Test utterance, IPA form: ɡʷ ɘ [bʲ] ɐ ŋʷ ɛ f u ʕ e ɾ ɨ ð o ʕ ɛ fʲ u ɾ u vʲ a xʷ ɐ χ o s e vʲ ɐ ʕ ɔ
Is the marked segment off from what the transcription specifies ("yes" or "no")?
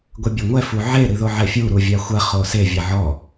no